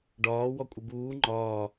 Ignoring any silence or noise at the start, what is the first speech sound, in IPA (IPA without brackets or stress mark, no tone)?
ɖ